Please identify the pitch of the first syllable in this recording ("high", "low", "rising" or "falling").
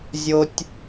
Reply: high